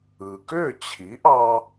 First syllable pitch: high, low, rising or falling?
low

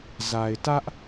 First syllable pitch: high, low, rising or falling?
low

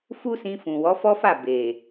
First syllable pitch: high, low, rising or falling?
high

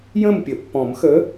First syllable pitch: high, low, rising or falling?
falling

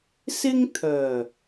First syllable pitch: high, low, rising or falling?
high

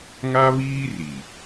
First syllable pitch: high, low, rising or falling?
high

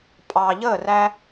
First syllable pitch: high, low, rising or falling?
low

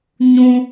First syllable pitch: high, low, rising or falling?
high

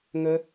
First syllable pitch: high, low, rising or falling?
high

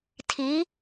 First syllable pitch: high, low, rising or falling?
rising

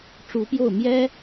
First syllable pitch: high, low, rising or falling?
rising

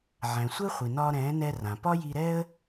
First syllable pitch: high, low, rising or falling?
low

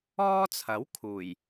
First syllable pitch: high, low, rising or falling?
high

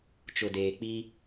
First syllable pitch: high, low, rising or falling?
low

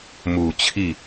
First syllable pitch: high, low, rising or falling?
low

